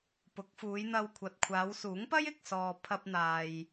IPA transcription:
p ʊ˨˥ k̚ f uː˨˧ j n̪ ɐ˧ w kʷʰ ɐ˨ t̚ kʷʰ aː˨˧ w s uː˨˥ ŋ p ɐ˥ j ɪ˨ k̚ s ɔː˨ pʰ ɐ˧ p̚ n̪ aː˨ j

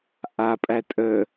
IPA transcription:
ʔ a pʼ æ tʼ ə

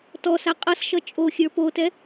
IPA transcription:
t ɔ s a qʼ ʌ s ʃ ʌ t͡ʃʼ o xʲ ə˞ p o t ɛ

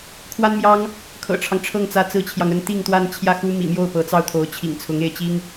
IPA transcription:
kʰ w a˥ n m j ɑ˥ ŋ | kʰ ɤ̰˨˩ ʈ͡ʂʰ ɑ˦ ŋ ʈ͡ʂʰ ɤ˥˩ ŋ t͡s ä˥ t͡s ɹ̩˥ t͡ɕʰ j ɑ˨ ŋ ə˥ n t̪ i˥˧ ŋ t̪ w a˥˧ n t͡ɕʰ j ä˥˩ x u˥ m ḭ˨˩ m j o˥˩ ʊ̯ p ɤ˧˥ t͡s ɑ˥˩ ʊ̯ t̪ʰ o˧˥ ʊ̯ t͡ɕʰ ḭ˨˩ ŋ t͡sʰ ʊ˧˥ ŋ e˥˩ ɪ̯ t͡ɕ i˥ ŋ

